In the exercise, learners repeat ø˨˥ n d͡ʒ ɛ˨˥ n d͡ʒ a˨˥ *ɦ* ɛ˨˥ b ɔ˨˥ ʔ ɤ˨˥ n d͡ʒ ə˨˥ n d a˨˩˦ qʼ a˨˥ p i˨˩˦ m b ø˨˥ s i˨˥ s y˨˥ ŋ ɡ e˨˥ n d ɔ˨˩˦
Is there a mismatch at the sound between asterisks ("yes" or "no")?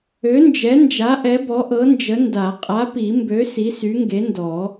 yes